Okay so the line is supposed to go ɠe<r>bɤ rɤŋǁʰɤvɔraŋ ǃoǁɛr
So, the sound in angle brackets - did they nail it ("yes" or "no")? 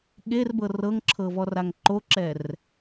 yes